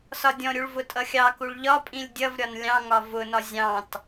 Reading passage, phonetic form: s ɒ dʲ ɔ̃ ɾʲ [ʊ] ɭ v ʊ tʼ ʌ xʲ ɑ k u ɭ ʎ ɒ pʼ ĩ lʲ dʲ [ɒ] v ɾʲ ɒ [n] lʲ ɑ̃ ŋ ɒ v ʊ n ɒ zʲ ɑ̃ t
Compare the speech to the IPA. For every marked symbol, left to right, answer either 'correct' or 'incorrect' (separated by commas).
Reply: incorrect, incorrect, correct